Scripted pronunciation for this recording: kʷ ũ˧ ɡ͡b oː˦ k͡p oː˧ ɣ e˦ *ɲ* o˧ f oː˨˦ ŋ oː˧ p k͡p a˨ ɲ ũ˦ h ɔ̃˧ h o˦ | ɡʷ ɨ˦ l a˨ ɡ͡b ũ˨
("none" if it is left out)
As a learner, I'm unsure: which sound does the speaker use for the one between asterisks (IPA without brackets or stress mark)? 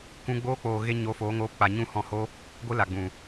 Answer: ɲ